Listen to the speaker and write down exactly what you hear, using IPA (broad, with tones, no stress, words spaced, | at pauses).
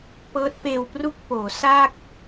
pɤː˦˥t̚peː˧wpru˥˩k̚poː˩˦ sa˥˩k̚